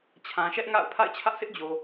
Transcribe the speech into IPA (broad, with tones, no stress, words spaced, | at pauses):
t͡ɕʰã˨ʃɛ˦ʔŋa̰˦˨ʊ̯ pʰa̰˦˨ɪ̯t͡ɕʰä˦ʔsʰɪ˦ʔd͡ʑo˨